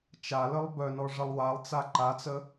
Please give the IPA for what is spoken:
t͡ʃaləlˠ bœnɔ ʐəlˠwalˠt͡sa ǃat͡sə

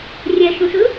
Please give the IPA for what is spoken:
rʲɛʃũsɯ

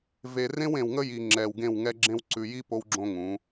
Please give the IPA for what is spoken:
ve˨rẽ˦wẽ˨w ŋə˦ji˨ŋ͡ǁɛ˨w ɡẽ˦˨wŋɛ˦ɡ͡ǁẽ˦w ǀʉ˨ji˦ po˦wɡ͡ǁõ˦ ŋũ˨˦

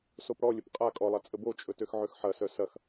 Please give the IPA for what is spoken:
sopɽɔlʲəp qʼa kʼɔlˠa t͡sʼəbot͡ʃʼɵ tøxʕøxħɐsœ sɐx

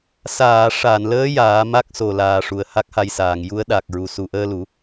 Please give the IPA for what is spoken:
saː˨˩˨ ʂa˨˩˨nləː˧˥ jaː˨˩˦ ma˦˥k̚so˨˩laː˨˩ ʂu˨˩ə̯ha˦˥k̚ha˧jsaː˨˩˨ŋ ju˧˥ə̯ɗa˨˩k̚ɹu˨˩ su˨˩˨ʔəː˧lu˨˩˦

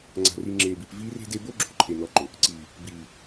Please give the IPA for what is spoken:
ŋ͡ǀa̤˨ri˨ ŋ͡ǁeː˨bi˨p viː˦re̤˦de˦ bo˦ɡ͡ǁo̤˨ ǃʰe˨nɔ˨˦ǃʊ˨ | ǀiː˨ | biː˨

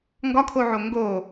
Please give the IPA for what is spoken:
ŋɡɒkʰoʕo ŋɡo

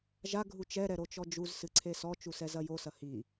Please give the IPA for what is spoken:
ʒa ɡʱut͡ʃɛ ɾɛɾot͡ʃɔd͡ʒuz sɨǀʰesɔ t͡ʃusɛzɐjo sɐhi

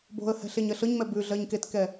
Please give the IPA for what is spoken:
bo̤ə̯hɛ̤ ɬeɲɜɬɤɲmɛ bʉɮɜɲ ketkɛ

